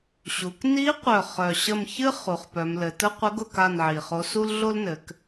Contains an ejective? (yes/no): no